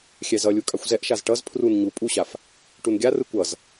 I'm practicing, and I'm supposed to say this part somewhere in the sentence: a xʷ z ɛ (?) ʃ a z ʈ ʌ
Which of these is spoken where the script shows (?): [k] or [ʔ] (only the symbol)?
ʔ